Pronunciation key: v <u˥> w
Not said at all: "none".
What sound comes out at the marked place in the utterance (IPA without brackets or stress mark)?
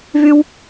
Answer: y˥